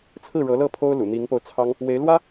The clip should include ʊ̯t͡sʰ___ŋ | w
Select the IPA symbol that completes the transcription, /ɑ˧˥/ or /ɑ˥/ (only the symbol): ɑ˥